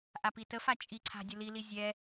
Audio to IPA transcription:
ʔapitəfa t͡ʃʼiǀʰa̤ dʲəlili zʲɛ

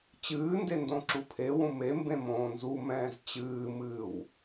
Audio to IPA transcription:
t͡ɕɨːnde ndõǁupʰewũ me mbẽmõːnzumɛ̃ːz t͡ɕɨːmɨːw

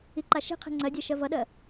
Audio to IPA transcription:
iǃaʃi̤qʰe̤ ŋ͡ǀɜdʲɜ ʃɜvʌɗɜ

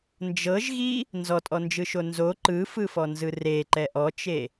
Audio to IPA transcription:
nd͡ʒɤʒɣi | nzɔtʼɔnd͡ʒɯʃo nzo ǃɯfɯfɔnzɯ reǃɛ ʔɔt͡ʃe

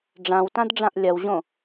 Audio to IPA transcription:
ɖ͡ʐãwtãdɖ͡ʐãʔ lʲɐwʑõ

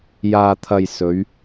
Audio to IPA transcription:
jaː˨t̪ʰɐ˨j sɵ˨˧ɥ

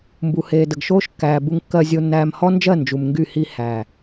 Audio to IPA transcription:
mbu˨heː˨də˨ɡʃoː˦ʃ kːæː˨ bu˦ŋkːɜ˦zʲo˦nːæː˦m hɔ˦nd͡ʒɜ˦˨ nd͡ʒu˨mŋɡy˦˨hi˦ hæ˨

